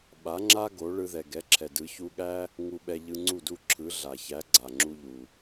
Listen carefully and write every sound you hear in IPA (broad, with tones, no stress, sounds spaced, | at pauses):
ɓ a˩˥ ŋ͡ǁ a˥ ɡ o˩˥ ɭ ɯ˧ ð ɛ˩ ɡ ɛ˩˥ ǁʰ ɛ˩ d ɯ˩˥ ç u˧ ɠ æ˥ | ŋ u˧ ɓ ɛ˧ ʎ ɯ˧ ŋ͡ǀ u˥˩ d u˥˩ ǁʰ ɯ˩˥ ɮ a˩ ç æ˩˥ ɡ͡ǀ a˩ ŋ͡ǁ u˧ ʎ u˩